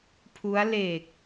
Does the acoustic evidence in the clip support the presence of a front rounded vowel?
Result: no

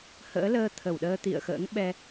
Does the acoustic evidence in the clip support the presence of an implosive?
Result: yes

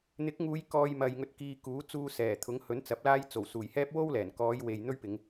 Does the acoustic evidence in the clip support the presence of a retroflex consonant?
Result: no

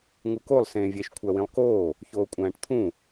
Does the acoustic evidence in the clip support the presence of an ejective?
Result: yes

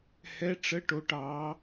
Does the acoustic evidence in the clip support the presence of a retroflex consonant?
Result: yes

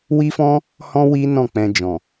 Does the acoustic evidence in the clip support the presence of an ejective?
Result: no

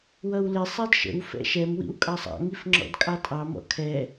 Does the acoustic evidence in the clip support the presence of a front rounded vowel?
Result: no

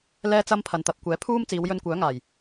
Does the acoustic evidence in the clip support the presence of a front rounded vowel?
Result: yes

